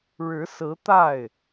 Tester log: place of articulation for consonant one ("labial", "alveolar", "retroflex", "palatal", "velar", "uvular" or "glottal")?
retroflex